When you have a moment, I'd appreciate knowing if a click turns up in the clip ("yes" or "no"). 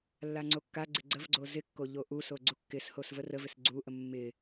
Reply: yes